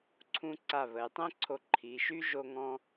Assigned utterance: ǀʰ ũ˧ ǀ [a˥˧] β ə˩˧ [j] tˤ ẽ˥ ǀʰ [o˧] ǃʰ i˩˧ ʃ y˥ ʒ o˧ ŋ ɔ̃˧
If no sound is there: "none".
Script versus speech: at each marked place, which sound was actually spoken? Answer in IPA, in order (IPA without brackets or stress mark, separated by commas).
a˧˩, j, o˧